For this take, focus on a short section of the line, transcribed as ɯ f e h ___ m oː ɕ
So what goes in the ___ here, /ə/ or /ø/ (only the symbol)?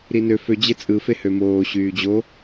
ø